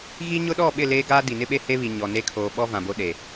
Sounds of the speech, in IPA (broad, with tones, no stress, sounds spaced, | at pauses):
ɣ i˦ ɲ ʊ˦ ɗ ɔ˦˨ ɓ ɪ˦˨ l eː˦ ɡ aː˦ d i˨ n ɪ˦ ɓ e˦ h e˦ β i˨ ɲ ɔ˨ n e˦ kʰ oː˨ ɓ ɔ˦ v ã˨ b o˦ ɗ e˨